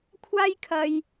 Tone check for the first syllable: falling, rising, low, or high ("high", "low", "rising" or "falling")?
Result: high